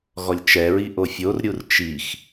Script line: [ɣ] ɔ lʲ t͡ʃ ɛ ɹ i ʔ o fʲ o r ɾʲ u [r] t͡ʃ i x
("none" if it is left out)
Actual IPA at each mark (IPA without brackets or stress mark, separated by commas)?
ɣ, r